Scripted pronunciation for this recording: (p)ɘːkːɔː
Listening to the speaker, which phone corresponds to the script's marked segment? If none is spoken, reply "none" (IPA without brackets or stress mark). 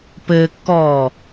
p